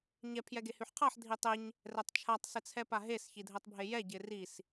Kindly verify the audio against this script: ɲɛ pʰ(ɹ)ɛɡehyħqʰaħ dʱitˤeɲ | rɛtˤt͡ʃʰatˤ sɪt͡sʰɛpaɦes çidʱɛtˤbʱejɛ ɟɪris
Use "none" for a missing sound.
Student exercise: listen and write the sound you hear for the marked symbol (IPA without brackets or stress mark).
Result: j